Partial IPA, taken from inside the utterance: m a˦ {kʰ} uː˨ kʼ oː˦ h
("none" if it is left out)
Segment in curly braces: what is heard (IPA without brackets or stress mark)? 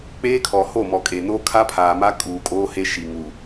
kʼ